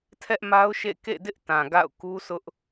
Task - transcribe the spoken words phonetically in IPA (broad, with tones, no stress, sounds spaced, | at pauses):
tʰ ɛ˦ ʔ m a˦ ʊ̯ ʃ ḛ˦˨ k ḛ˦˨ d ɪ˦ ʔ t ã˨ ɡ a̰˦˨ ʊ̯ k u˦ sʰ ʊ˦ ʔ